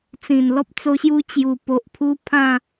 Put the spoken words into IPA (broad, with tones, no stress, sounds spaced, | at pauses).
t͡s ĩ˨˩ n l ɔ˦ p̚ t͡s o˧ ɕ j u˧ t͡ɕ j u˨˩ p o˨ ʔ pʰ u˧ pʰ ã˥˧